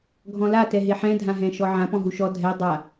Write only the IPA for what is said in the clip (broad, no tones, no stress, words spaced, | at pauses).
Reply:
ɡʱɔ̃la tɛɦeħɛ̃ dʱãɦɛ̃ʃɔʕã pɔ̃ɦuʃɔ dʱɛ dˤa